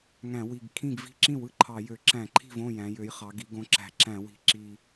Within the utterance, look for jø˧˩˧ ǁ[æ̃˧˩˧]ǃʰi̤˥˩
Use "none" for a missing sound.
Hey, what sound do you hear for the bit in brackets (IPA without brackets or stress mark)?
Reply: æ̃˧˩˧